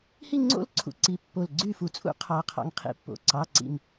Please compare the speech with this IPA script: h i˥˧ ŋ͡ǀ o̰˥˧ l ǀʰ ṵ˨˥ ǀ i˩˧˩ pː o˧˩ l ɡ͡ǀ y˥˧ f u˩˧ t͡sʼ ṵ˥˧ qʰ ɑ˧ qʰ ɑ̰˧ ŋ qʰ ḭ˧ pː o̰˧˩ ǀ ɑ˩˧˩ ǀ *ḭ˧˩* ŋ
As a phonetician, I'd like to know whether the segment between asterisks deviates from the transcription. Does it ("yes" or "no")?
no